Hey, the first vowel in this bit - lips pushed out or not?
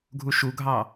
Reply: yes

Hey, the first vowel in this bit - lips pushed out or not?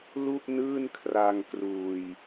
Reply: yes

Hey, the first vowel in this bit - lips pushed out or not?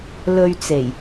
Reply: yes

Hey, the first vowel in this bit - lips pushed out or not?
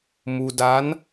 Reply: yes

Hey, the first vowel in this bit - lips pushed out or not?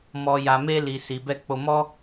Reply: yes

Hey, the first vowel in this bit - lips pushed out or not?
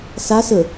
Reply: no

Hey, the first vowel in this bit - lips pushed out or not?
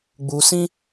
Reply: yes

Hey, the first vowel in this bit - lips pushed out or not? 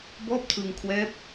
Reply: yes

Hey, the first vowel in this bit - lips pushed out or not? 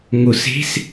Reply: yes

